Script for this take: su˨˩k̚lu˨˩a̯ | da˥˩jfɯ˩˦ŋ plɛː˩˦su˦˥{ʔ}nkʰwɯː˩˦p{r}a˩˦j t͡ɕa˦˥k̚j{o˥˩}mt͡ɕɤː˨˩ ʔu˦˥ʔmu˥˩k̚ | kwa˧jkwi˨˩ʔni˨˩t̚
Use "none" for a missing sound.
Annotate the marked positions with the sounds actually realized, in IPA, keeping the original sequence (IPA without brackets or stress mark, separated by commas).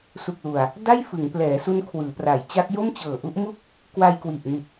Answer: none, r, o˥˩